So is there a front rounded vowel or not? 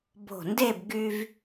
yes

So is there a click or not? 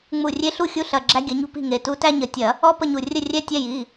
yes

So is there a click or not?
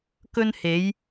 no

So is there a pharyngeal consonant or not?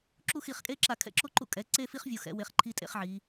yes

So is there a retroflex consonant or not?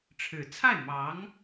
yes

